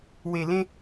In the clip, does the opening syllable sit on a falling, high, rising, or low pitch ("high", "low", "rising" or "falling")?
low